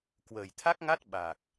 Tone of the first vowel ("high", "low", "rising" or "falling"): low